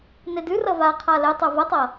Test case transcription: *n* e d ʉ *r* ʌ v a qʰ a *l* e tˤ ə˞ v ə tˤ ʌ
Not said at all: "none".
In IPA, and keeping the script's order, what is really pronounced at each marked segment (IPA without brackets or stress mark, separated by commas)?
n, r, l